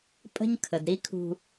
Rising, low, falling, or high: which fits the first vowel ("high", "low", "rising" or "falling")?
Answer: high